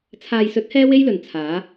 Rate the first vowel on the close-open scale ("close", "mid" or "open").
open